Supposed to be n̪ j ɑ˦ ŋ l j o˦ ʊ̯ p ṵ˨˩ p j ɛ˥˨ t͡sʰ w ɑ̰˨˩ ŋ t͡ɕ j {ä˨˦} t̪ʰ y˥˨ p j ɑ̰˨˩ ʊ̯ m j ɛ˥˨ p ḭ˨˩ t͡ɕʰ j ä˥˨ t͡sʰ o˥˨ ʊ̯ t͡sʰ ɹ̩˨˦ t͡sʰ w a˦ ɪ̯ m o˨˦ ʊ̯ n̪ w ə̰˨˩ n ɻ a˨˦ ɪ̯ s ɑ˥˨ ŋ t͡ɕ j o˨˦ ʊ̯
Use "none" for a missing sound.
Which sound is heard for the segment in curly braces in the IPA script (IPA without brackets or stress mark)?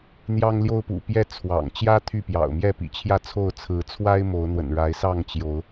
ä˦